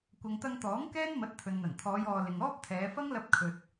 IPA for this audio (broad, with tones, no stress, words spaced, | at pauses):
kʷɐ˨ŋt̪ɐ˧ŋ t̪ɔː˨˥ŋ kɛː˥nmɐ˨˥t̚ t̪ʰɵ˨nn̪ɐ˨˩n t̪ʰɔː˨˧jɔː˨ lɪ˨ŋɔː˥p̚t̪ʰɛː˨˧ fɐ˥ŋlɐ˧p̚ kʰɵ˨t̚